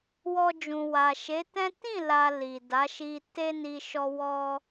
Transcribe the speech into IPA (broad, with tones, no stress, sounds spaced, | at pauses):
w ɔ˧ d͡ʒ ũ˨ w a˨ ʃ e˨˦ t ɛ̃˦ t ĩ˦˨ l a˨ l i˨ d a˨˦ ʃ i˧ t e˦ n i˧ ʃ ɔ˦ w ɔ˦